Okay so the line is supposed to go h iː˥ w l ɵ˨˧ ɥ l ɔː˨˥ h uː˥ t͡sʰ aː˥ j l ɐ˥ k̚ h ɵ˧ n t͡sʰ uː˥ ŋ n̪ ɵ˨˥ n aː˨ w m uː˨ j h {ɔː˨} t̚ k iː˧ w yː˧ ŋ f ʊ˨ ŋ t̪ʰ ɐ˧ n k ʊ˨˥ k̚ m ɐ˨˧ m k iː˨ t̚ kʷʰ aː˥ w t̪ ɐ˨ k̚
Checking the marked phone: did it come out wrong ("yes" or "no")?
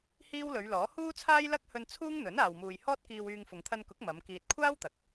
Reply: yes